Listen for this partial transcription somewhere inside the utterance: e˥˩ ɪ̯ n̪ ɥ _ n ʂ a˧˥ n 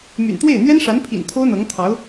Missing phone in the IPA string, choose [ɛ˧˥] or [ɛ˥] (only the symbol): ɛ˥